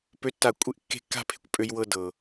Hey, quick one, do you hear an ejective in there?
yes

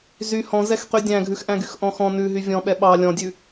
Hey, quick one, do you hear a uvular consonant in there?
yes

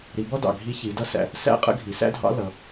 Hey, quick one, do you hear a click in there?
no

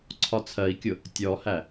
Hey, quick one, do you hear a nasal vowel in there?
no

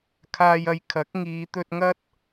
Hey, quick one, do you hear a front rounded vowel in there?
no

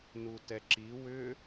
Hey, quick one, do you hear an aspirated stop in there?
no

